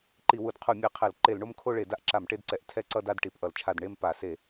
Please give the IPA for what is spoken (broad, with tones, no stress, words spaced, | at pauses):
ǃi˧˩˧wu˧˩˧d qʰu˧˩˧mʲe˧˩˧qʰɛ˧˩˧l ǃe˧˩˧lɳo˦˨mkʰo˦˨ɭe˧˩˧ da˦˨ʔǁa˧˩˧mʈe˦˨dǀɛ˧˩˧ʔ tʰɛ˦˨ǀʌ˦˨da˦˨d ʈi˧˩˧pʔʌ˧˩˧lt͡ʃʰa˦˨d ɳe˦˨m pa˧˩˧se˧˩˧